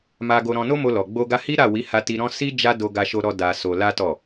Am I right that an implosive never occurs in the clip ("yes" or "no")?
yes